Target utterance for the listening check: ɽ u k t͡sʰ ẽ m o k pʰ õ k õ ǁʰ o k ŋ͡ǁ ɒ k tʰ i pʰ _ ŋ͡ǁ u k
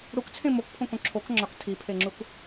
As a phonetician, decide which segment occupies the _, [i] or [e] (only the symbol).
e